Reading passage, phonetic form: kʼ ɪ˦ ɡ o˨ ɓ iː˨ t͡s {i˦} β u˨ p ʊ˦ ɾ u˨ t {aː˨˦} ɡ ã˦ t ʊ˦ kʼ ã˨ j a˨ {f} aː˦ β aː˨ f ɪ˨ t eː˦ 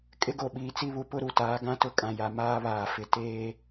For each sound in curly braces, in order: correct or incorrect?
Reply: correct, correct, incorrect: m

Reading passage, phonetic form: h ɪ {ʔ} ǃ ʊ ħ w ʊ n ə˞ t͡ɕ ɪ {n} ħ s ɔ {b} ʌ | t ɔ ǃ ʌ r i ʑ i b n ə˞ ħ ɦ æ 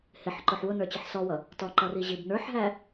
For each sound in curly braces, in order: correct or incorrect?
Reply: incorrect: ħ, incorrect: none, incorrect: w

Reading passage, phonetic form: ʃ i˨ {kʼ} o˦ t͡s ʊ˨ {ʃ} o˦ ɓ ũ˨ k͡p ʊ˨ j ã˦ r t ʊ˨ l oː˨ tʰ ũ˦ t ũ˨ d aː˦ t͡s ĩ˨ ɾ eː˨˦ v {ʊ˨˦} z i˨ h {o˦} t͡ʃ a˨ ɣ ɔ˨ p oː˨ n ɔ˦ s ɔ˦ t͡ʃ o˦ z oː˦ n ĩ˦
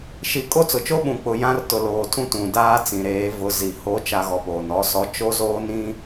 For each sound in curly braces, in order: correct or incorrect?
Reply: correct, incorrect: t͡ʃ, correct, incorrect: o˨˦

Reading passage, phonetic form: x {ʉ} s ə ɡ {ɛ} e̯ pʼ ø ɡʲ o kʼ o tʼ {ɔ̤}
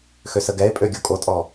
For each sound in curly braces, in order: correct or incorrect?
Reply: incorrect: ø, correct, incorrect: ɔ

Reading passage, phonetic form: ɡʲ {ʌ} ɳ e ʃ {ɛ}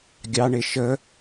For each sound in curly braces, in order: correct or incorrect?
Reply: incorrect: ɑ, incorrect: ə

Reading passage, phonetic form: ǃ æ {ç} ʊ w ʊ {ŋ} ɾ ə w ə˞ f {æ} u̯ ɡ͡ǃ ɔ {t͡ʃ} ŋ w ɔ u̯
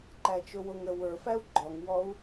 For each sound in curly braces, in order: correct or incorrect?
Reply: incorrect: t͡ʃ, correct, correct, incorrect: none

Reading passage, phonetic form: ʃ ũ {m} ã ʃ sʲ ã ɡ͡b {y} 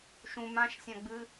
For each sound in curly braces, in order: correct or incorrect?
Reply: correct, incorrect: ɨ

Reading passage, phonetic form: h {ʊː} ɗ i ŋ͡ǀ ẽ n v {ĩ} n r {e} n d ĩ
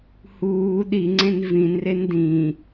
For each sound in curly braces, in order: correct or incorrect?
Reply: incorrect: uː, correct, correct

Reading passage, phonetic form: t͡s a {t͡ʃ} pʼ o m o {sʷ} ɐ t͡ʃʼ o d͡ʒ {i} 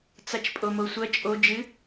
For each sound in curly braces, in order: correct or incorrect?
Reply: correct, correct, incorrect: ɨ

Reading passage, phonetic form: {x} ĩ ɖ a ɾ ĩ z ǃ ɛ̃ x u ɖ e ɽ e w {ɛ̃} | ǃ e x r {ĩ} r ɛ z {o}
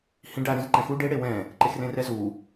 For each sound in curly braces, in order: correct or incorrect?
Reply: incorrect: h, correct, incorrect: ẽ, incorrect: u

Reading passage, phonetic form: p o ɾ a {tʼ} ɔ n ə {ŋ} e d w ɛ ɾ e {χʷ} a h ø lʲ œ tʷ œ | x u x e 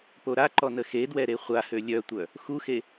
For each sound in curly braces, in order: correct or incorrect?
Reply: incorrect: ǃ, incorrect: x, correct

